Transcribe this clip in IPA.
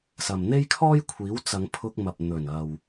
sɐ˨m n̪e˥jkʰɔː˥jkʷʰiː˨˥w t͡sɐ˨˧ŋpʰʊ˧k̚mɐ˨p̚ n̪ɵ˨˩n ɐ˨w

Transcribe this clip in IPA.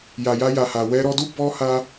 ja˨ja˧ja˨ ha˨wɛ˧ɾɔ˧du˦ bɔ˧ ha˦

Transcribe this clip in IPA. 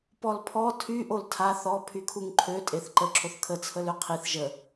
pɔlpʰɔ tʰy ʔoltʰa θɔ pʰykʰuŋǃʰø tʼeθǃə ǁʰoθkʰə t͡sʰəløqʰiθ ʒə

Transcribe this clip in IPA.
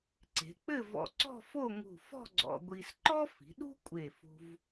ǀe̤˩˧k͡pɘ˥˧vɔ̰˧˩ ǀɔ̤˥˧fo˥˧ŋṳ˧˩fɔ̤˥˧ ɡ͡ǀɔ̰˧ɡʷi˧s ǃɔ˥fi̤˩˧ɗṳ˥ kʷʼe˧˩fṳ˧v

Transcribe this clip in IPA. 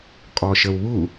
kʼɔʃəwβu

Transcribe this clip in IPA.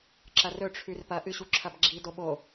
ǁɐrɵ ʈ͡ʂʰʉrpɐ ʔɨɕuǁʰɐbɡ͡ǁi doɓo

